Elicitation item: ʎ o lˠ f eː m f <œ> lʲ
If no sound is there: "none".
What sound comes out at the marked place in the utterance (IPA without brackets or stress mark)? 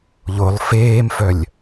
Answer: œ